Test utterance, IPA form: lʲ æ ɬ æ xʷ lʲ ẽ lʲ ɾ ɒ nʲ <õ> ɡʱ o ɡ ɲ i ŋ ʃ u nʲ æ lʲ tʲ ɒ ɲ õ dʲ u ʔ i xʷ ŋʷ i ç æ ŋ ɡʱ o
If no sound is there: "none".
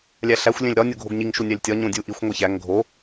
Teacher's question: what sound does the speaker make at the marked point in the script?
o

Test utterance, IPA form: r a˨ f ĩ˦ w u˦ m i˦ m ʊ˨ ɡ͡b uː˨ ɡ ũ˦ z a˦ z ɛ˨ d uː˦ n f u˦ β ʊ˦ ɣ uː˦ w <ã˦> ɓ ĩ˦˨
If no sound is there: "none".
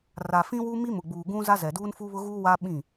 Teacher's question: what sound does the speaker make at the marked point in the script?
a˦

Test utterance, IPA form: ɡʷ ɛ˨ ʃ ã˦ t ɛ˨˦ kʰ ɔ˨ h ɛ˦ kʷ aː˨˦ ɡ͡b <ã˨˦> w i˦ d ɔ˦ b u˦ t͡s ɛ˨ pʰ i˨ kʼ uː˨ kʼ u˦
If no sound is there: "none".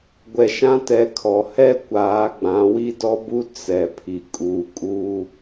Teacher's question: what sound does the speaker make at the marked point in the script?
ã˨˦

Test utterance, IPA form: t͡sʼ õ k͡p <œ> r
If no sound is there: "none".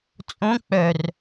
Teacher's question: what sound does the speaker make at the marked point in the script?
œ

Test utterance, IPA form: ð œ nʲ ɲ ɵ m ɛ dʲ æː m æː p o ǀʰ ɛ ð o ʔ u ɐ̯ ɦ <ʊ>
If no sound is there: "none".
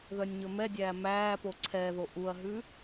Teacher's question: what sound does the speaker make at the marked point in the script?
ʉ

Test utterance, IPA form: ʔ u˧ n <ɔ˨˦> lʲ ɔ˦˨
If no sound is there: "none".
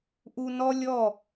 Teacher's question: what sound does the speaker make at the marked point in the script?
ɔ˦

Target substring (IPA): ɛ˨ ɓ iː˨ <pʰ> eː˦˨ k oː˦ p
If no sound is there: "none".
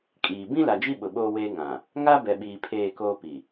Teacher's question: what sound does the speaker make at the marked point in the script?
pʰ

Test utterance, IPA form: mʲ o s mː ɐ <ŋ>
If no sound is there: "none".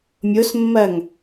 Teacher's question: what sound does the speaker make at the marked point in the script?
ŋ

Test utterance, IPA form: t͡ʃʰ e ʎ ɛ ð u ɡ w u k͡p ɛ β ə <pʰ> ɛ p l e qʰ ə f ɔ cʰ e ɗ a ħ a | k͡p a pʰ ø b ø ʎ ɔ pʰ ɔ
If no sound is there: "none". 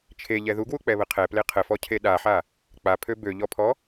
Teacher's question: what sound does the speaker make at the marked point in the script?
qʰ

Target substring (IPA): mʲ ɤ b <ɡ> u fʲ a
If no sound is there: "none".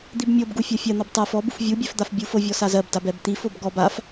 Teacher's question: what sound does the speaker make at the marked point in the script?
ɡ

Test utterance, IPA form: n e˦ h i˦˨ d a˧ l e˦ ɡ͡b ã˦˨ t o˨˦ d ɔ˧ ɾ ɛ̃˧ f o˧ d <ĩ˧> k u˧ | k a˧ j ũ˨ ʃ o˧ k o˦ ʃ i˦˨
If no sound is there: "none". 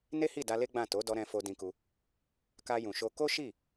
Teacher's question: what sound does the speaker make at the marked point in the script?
ĩ˧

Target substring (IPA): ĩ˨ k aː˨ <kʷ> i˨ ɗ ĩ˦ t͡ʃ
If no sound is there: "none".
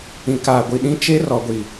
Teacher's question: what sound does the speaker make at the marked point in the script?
ɡʷ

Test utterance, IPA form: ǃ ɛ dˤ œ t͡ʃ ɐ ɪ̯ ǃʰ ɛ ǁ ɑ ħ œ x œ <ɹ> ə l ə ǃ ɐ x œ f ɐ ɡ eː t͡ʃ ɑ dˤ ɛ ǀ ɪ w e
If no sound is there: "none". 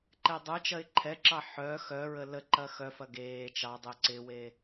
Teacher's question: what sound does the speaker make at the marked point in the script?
ɹ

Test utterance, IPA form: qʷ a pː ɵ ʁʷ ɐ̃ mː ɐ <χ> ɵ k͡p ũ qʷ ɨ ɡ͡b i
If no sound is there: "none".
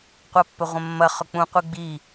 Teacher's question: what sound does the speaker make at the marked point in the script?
χ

